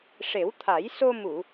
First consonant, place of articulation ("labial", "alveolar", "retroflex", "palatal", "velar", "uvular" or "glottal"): retroflex